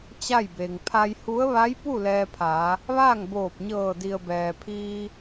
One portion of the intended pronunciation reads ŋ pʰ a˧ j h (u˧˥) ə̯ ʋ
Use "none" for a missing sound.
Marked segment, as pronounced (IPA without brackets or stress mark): u˧˥